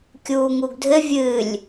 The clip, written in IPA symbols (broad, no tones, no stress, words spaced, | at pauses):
kʲuːŋuɡdʱɘ vʲɨlʲ